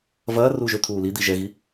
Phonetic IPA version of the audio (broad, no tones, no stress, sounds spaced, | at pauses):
v ɐː r uː ʒ ø t̪ʰ uː l i d̪ i ʒ ɛ ɣ i